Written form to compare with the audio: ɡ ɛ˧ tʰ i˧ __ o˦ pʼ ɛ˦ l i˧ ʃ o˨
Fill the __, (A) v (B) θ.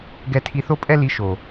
B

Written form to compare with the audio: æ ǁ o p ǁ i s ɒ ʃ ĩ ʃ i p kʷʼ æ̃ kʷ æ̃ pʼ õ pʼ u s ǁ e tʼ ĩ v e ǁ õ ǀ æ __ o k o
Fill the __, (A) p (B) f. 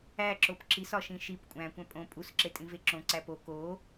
A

